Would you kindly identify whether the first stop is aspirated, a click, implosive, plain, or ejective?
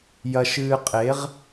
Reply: ejective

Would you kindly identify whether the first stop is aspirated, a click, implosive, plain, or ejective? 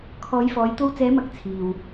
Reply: aspirated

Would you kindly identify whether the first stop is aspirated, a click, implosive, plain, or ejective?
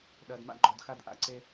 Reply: implosive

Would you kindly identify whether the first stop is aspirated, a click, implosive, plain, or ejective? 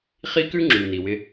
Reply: plain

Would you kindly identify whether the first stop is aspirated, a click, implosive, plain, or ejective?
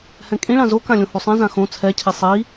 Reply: ejective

